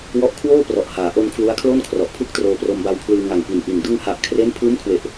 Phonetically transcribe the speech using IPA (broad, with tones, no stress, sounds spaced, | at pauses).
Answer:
w ɔ˦˥ ʔ kʰ w oː˥˩ p r ɔ˨˩ ʔ h aː˩˦ ʔ o˧ n kʰ l u˦˥ a̯ kʰ l o˥˩ n kʰ r ɔ˨˩ ʔ pʰ ɯ˥˩ k̚ t r oː˧ p r o˧ m b a˧ w pʰ l ɯː˧ ŋ a˨˩ ŋ p i˨˩ n ʔ i˨˩ n d ɯ˧ ŋ h a˨˩ ʔ kʰ r e˦˥ n pʰ ɯː˦˥ m kʰ w e˨˩ ʔ